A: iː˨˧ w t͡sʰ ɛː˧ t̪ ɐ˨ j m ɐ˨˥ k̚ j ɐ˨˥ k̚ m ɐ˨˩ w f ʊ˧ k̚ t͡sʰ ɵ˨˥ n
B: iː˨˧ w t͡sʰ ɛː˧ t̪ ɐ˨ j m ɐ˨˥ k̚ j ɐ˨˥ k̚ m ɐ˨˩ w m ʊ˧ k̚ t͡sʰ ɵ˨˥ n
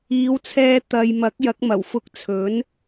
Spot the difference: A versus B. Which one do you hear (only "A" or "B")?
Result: A